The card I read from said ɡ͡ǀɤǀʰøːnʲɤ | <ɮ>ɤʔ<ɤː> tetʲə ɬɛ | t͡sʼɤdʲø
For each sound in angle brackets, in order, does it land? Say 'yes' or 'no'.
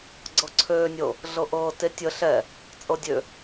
yes, yes

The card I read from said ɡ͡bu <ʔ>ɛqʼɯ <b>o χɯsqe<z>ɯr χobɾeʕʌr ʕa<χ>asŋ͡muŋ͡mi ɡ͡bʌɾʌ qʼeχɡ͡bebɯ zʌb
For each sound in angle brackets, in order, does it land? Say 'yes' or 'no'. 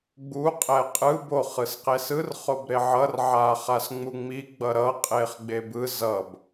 no, yes, no, yes

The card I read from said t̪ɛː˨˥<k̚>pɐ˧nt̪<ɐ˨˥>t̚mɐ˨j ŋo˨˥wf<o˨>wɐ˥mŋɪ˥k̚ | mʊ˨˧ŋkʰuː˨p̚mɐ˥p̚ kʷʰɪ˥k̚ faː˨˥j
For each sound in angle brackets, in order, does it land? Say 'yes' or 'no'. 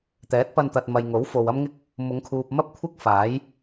no, no, yes

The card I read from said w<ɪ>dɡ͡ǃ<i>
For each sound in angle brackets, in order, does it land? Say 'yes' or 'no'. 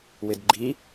yes, yes

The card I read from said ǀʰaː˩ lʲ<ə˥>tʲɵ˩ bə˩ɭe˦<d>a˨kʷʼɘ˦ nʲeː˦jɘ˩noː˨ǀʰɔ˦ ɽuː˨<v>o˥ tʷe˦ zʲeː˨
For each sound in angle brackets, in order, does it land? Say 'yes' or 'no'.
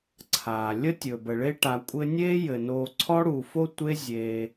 yes, no, no

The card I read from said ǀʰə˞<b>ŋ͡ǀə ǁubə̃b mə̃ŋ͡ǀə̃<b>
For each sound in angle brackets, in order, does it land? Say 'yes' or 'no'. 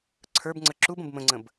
yes, yes

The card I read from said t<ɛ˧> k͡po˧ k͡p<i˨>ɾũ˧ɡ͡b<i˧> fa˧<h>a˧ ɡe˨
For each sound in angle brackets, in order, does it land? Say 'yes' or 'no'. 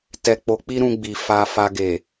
yes, no, no, no

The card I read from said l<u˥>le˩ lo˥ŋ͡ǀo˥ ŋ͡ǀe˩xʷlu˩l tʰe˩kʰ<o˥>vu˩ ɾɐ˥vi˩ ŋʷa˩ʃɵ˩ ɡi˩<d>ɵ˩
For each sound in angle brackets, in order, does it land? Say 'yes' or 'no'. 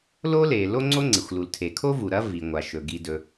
no, yes, yes

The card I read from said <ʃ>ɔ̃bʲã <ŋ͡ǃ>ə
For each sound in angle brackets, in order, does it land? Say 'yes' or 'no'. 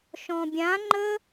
yes, yes

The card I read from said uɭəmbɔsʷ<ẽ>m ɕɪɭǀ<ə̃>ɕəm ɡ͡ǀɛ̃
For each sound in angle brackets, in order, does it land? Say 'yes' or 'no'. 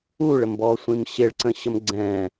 no, yes

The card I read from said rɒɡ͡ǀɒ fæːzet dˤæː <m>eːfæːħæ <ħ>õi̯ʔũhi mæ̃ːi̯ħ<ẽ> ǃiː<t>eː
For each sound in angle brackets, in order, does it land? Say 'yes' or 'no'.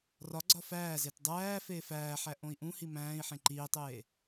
no, no, yes, no

